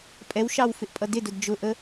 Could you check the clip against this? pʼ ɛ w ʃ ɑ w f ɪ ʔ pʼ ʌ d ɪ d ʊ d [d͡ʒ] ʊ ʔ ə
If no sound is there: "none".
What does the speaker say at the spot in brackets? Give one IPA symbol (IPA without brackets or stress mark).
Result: d͡ʒ